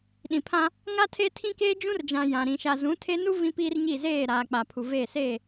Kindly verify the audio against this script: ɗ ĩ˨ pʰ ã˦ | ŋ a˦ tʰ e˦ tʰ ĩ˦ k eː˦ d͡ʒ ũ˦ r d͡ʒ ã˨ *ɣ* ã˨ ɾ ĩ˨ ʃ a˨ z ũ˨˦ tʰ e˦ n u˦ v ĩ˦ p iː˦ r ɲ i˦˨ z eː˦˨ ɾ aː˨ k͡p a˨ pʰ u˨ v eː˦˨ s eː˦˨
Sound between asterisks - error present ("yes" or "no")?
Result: yes